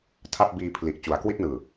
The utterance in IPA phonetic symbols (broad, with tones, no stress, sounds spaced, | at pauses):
tʰ a˥˩ p̚ b iː˧ pʰ l i˨˩ ʔ t͡ɕ u˩˦ a̯ k w i˥˩ t̚ n ɯː˨˩